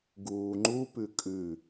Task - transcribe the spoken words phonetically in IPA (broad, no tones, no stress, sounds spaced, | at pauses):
ɡ uː ŋ͡ǃ u p ʉ kʼ ʉ